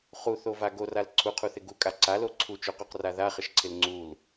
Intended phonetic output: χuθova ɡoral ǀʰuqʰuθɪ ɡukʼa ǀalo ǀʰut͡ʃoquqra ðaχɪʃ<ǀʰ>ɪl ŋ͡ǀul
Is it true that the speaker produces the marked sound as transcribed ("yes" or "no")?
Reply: yes